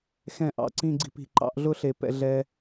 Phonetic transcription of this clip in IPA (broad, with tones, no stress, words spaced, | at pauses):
xɛ̃˧˩ ʔɑ̰˧˩ǀĩ˥˧ɡ͡ǀi̤˥pi̤˧ ǃɑ̰˥˧ʔ ɮʊ˥˧ɬe˧˩ pɛ̰˧ ɮɛ˧